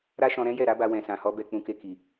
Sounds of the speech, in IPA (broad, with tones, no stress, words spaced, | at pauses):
ɾa˦ʃɔ̃˧ɾɛ̃˦ jɛ˦˨ɾa˨˦ba˧ wɛ̃˨sã˨hɔ˧ bɛ˧ k͡pũ˧ke˧ki˨